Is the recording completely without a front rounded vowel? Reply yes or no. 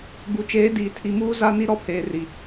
yes